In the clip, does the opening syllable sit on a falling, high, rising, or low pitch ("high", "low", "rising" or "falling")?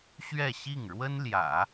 falling